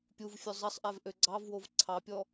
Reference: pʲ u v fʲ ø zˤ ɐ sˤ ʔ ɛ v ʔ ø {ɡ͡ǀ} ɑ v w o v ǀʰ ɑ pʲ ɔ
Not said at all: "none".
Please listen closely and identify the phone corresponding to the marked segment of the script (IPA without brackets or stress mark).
ɡ͡ǀ